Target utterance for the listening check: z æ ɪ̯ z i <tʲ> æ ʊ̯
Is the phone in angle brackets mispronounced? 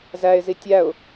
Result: no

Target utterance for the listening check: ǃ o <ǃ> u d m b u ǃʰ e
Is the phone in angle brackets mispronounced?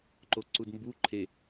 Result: yes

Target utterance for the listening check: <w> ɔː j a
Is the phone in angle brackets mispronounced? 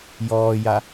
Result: yes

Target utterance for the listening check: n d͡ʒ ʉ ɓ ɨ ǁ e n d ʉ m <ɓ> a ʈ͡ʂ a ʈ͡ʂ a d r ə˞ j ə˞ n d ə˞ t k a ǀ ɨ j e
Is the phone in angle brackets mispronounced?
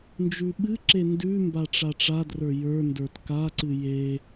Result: yes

